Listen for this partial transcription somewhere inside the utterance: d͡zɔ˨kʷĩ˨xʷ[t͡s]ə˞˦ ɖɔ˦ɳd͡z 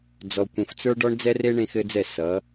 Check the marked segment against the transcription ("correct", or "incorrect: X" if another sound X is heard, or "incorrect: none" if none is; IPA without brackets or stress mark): correct